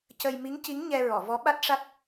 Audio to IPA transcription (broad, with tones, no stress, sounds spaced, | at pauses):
c ə˧ j m i˧˥ ŋ c i˧˥ ŋ ɲ ɛ˧ ɹ ɔ˨˩˨ v ɔ˧˥ ɓ a˦˥ t̚ ʂ a˦˥ t̚